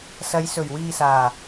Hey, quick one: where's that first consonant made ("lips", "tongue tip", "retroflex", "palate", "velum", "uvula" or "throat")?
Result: tongue tip